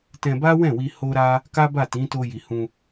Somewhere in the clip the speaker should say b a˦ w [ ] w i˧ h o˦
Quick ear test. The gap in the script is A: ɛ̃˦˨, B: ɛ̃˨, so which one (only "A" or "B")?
A